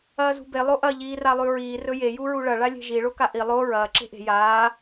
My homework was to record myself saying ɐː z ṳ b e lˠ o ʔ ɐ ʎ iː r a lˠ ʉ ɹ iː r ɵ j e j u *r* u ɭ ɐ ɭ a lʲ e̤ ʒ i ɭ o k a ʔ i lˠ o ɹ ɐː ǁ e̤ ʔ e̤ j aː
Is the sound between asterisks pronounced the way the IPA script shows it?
no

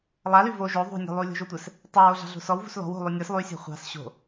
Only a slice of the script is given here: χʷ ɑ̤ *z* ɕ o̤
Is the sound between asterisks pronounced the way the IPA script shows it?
no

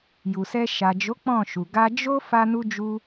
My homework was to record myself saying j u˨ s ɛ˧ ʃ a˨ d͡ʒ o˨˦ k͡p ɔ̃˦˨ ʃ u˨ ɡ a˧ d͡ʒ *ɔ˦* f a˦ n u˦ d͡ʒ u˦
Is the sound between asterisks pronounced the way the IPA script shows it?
no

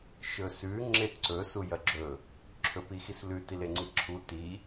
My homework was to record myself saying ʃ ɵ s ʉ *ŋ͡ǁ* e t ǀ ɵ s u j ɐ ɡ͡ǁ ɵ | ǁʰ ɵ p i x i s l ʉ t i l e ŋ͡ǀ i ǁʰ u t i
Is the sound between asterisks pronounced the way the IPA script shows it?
yes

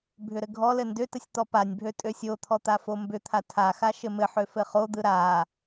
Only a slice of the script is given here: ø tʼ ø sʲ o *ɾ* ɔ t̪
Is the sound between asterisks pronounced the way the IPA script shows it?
no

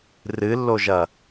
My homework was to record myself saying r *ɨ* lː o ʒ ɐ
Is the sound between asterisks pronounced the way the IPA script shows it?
yes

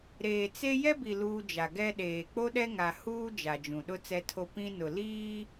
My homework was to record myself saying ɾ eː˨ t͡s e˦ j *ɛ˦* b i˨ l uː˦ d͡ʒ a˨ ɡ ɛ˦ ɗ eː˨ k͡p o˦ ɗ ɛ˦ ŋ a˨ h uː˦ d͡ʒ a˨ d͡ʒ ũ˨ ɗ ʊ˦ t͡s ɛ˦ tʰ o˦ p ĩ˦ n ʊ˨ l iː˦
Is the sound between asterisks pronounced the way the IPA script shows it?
yes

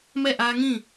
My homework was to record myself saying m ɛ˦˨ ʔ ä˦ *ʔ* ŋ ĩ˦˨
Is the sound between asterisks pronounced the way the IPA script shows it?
no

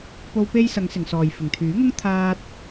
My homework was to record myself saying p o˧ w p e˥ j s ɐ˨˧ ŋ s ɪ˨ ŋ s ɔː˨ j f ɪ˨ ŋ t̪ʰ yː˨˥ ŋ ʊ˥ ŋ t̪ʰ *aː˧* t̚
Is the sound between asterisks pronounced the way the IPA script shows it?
no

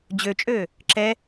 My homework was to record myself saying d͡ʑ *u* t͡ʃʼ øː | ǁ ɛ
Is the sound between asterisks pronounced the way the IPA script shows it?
no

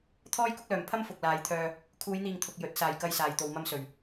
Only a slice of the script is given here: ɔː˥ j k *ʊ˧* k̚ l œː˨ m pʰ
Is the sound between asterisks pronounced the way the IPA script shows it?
no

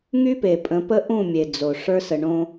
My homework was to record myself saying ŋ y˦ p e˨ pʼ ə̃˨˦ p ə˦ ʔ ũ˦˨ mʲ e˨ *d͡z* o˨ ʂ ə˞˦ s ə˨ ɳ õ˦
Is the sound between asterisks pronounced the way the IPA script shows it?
yes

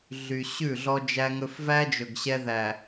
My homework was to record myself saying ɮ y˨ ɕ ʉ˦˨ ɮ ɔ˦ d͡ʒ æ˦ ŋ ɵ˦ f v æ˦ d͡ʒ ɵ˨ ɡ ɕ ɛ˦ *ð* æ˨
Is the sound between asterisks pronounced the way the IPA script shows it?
yes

